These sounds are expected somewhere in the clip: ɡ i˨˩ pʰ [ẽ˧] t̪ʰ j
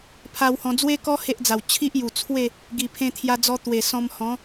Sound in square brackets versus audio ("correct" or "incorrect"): correct